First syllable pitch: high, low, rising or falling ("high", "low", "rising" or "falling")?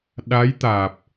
rising